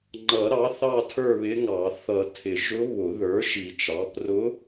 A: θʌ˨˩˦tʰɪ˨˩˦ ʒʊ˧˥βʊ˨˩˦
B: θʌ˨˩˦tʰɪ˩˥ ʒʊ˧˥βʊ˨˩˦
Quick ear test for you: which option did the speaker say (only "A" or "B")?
A